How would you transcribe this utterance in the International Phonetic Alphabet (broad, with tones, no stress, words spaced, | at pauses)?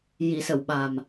ji˨˩˨sə˨˩˨w ɓa˨˩m